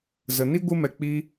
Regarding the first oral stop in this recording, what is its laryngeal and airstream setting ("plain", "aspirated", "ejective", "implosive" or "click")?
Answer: plain